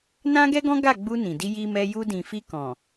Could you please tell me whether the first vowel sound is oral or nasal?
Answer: nasal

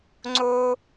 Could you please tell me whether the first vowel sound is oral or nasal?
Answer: oral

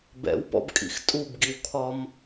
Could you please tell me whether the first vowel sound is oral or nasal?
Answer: oral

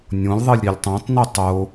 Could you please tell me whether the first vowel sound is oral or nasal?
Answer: nasal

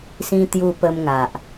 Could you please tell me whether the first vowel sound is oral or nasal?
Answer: nasal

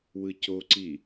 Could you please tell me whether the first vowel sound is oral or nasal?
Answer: oral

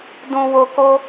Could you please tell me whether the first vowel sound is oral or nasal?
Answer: nasal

